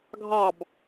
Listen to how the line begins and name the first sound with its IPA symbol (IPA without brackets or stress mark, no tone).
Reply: ɡʱ